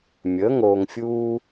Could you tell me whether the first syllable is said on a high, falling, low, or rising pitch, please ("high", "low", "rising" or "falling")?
rising